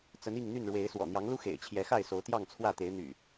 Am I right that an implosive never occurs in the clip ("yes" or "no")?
yes